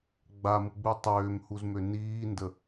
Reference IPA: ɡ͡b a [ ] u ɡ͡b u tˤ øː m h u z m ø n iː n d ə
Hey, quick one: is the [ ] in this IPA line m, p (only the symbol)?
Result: m